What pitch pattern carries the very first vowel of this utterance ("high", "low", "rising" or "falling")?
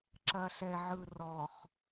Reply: low